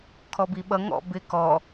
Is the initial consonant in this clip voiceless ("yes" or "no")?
yes